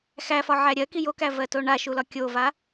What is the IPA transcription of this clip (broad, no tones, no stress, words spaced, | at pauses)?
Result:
xæfɒʕæ ɾʲɜki jokævɜto ɳaʃulɒ kʲova